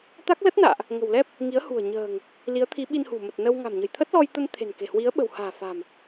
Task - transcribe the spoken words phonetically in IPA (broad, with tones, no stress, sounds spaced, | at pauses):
t̪ a˦˥ k̚ l ə˦˥ t̚ n a̰ː˧˨ ʔ | ŋ ə̤˨˩ w l ɛ˦˥ p̚ | ŋ i˨˦ ə̯ h ṳ˨˩ ə̯ ɲ ə̤ː˨˩ ŋ | l i˨˦ ə̯ t̪ʰ i˨˦ ɓ i˧ n h ṳ˨˩ m ə˨˩ t̚ n ə˧ w ŋ a̤˨˩ m ɲ ə̤˨˩ j t̪ʰ ə˦˥ t̚ l ɔ˧ j t̪ ə˧ n t̪ʰ e̤˨˩ n k e̤˨˩ h w i˨˦ ə̯ ɓ ə̤˨˩ w h a̤ː˨˩ f a̤˨˩ m